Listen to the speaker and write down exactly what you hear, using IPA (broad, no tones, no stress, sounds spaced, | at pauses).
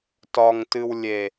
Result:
t ɒ ŋ t ɨ w lʲ e